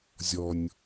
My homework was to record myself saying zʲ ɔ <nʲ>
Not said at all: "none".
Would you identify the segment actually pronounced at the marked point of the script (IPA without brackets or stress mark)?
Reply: nʲ